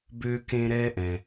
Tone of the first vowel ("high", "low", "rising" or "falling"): high